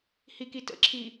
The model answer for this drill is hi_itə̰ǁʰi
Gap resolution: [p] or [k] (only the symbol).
k